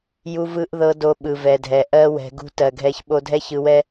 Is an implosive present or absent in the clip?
present